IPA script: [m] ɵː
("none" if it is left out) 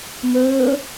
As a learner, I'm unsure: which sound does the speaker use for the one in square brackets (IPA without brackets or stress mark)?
m